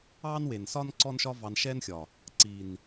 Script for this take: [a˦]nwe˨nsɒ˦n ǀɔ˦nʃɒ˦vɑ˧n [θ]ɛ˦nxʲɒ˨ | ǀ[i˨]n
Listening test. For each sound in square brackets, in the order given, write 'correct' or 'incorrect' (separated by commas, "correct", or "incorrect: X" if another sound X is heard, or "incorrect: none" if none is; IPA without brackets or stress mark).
incorrect: ɑ˦, incorrect: ʃ, correct